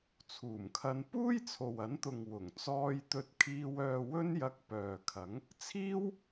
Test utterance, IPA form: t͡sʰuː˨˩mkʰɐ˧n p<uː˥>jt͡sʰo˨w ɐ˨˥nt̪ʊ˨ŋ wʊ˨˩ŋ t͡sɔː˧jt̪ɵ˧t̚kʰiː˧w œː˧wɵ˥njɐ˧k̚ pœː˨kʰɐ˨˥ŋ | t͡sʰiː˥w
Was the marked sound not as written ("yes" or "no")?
no